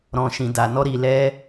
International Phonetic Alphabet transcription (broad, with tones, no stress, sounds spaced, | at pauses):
ɾ ɔ̃˨ ʃ ĩ˨ d a˨ n ɔ˧ ɾ i˨ l ɛ˧